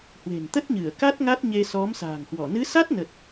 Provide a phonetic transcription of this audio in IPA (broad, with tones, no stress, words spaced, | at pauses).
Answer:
hwe̤˨˩n t̪ə˦˥t̚ɲɨ˧˩ə̯ka˦˥t̚ ŋa˦˥t̚ɲe˧sɔ˨˦m sa̤ː˨˩ŋhwɔ˧˩ nɨ˨˦sa˦˥t̚nə˨˩t̚